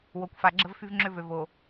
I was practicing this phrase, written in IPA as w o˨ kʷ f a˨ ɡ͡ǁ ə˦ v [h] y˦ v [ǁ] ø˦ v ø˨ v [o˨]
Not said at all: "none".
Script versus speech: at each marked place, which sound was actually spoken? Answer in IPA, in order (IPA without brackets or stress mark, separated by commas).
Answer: f, ŋ͡ǁ, o˨